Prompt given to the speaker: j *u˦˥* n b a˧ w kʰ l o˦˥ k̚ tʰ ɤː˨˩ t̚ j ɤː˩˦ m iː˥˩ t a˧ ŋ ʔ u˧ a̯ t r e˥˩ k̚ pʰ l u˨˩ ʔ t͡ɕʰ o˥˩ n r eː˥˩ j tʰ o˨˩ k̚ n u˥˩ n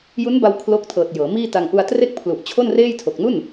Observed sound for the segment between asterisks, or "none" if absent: u˦˥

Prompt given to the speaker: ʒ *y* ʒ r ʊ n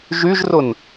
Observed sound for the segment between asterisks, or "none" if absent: y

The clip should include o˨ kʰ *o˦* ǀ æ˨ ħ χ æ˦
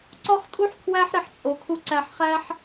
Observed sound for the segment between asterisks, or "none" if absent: u˦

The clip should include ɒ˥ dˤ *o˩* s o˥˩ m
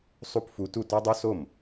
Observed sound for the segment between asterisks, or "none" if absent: o˥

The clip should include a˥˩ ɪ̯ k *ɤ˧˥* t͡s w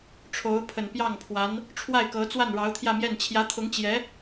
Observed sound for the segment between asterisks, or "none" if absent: ɤ˧˥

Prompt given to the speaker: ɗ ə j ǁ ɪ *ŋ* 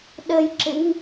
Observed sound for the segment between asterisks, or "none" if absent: ŋ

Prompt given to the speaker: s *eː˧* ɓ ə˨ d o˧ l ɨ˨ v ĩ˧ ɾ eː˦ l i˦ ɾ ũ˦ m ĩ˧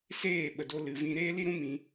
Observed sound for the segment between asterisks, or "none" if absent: eː˦˨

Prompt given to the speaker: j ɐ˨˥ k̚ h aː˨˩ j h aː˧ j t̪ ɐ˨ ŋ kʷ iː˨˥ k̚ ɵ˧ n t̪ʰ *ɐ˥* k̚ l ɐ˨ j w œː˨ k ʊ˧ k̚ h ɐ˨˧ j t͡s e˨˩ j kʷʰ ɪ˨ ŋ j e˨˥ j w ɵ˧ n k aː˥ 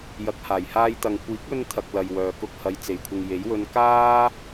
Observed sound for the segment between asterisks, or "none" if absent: ɐ˧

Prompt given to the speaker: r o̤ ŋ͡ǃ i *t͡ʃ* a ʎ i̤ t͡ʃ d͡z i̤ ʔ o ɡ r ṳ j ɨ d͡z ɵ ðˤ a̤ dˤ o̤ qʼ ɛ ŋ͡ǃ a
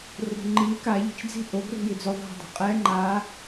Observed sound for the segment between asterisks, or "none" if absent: k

